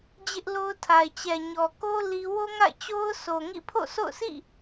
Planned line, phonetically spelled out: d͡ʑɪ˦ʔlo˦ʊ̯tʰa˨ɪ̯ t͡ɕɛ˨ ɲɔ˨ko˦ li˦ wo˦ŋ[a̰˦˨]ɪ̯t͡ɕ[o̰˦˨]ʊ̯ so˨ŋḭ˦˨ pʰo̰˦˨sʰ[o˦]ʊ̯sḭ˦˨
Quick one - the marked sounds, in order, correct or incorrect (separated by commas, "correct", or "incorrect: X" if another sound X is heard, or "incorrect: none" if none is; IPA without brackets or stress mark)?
correct, incorrect: o˦, incorrect: o̰˦˨